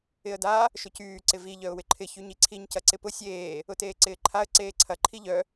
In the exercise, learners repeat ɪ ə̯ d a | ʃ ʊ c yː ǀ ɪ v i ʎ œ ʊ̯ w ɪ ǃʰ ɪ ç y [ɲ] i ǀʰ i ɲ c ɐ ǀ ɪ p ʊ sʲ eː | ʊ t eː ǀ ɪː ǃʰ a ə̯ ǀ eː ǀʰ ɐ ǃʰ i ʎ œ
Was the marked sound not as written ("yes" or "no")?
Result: no